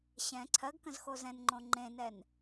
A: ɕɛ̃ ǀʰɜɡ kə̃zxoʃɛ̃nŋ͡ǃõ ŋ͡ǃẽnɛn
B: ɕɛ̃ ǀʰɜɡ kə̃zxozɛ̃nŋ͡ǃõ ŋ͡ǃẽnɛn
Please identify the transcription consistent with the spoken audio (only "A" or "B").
B